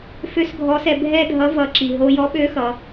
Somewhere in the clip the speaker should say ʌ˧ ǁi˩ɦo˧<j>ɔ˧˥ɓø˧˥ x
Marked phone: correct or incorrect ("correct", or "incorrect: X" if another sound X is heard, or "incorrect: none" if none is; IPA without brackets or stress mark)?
correct